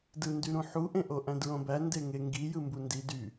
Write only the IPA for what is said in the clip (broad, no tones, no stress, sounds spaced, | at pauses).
d ɯ n d y ɾ ũ ħ u ʔ ẽ ʔ o ʔ æ̃ d ɹ õ b æ n d e ŋ e ŋ ɡ i j ɯ m b u n d i d y